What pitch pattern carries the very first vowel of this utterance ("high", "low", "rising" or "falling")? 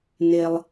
low